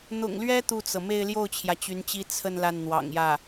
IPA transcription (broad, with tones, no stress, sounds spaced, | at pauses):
n̪ ʊ̰˨˩ ŋ l ɥ ɛ˥ t̪ u˥˩ t͡s ɤ˩ m e˥˧ ɪ̯ l j o˥˩ ʊ̯ t͡ɕʰ j ä˩ t͡ɕ y˧˥ n t͡ɕ i˥ t͡sʰ ə˥˧ n l a˥˩ n n̪ w ɑ̰˨˩ ŋ j ä˥˩